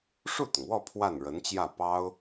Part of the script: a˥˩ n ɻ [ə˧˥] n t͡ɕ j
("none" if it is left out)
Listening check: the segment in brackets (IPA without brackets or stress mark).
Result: ə˧˥